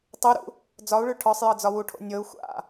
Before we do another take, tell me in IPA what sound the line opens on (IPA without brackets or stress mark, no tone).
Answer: tˤ